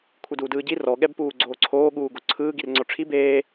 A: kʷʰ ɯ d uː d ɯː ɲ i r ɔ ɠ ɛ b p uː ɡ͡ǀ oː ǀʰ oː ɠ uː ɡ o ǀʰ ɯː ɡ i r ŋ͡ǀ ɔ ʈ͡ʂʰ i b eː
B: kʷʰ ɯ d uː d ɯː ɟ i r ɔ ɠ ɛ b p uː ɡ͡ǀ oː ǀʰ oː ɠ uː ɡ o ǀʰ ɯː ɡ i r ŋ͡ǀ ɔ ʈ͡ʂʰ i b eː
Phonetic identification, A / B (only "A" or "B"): B